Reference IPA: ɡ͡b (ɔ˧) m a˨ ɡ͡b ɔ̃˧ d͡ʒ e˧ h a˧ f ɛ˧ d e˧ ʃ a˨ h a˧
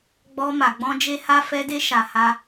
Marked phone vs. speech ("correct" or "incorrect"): correct